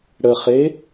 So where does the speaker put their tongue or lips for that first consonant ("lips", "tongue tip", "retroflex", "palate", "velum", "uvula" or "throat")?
retroflex